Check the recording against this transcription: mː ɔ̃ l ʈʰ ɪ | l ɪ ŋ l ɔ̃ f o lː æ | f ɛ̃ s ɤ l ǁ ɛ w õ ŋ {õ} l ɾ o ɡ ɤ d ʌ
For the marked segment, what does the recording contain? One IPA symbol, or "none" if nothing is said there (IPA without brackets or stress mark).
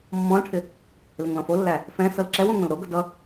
õ